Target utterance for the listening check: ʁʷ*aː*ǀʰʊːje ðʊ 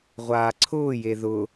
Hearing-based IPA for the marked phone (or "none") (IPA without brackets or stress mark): aː